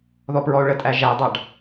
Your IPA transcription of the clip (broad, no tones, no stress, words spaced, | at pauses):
ðɔpɹɔo̯ɭətʼæ ʒædˤaɖ